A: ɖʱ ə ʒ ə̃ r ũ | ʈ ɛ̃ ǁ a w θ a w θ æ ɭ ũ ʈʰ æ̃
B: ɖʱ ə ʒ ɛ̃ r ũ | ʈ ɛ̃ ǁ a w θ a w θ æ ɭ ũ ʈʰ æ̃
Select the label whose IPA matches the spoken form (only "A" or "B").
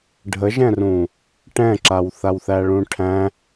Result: B